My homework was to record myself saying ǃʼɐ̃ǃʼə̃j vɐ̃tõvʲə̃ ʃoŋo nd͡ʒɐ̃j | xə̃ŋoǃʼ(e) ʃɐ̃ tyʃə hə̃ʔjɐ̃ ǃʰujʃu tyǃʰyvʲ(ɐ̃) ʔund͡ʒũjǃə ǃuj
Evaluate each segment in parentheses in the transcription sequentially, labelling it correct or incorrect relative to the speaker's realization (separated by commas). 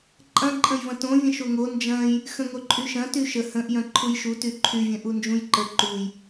incorrect, correct